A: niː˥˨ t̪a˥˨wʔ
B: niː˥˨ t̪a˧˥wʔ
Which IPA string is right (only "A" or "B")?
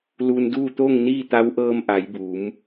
B